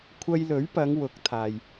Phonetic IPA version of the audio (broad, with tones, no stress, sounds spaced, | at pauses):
kʷʰ ɐ˧ j l ɵ˨˥ ɥ p ɐ˨˧ ŋ w ʊ˨˥ k̚ t̪ʰ aː˨ j